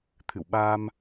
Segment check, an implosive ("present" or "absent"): present